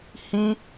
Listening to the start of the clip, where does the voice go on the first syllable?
high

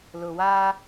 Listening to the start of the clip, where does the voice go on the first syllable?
low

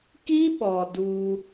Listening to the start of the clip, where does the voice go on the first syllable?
high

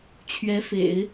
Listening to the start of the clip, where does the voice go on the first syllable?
rising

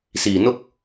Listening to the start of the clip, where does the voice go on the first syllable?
low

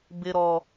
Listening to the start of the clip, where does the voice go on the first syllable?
high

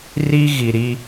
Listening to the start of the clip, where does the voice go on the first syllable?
high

